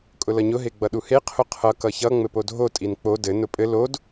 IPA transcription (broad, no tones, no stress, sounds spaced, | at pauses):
kʼ ʊ l ʌ ɲ ʊ ɦ e ɡ͡b ʌ ɗ u h e qʰ ʊ qʰ ʌ k ʌ ç ʌ ŋ͡m ɘ p o dʱ o tʼ i n k͡p o d ɘ n ʊ pʼ ɘ l o d